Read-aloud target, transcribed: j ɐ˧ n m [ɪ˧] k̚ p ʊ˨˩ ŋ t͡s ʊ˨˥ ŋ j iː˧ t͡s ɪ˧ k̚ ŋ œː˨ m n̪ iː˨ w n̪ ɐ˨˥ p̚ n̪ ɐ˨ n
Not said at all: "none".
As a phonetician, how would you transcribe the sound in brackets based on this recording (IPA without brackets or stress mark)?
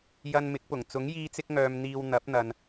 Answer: ɪ˨˥